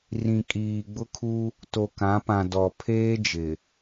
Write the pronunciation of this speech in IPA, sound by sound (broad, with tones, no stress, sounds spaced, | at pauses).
r ĩ˨ kʼ iː˨ ɡ͡b ʊ˦ kʰ u˦ | t o˨ k ã˨˦ p ã˨ d ɔ˨ pʰ eː˦ d͡ʒ ɪ˨